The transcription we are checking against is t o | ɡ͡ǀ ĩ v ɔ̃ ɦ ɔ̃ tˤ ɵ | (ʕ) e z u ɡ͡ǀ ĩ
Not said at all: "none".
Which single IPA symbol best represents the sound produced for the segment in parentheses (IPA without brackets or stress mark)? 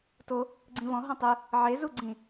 ʕ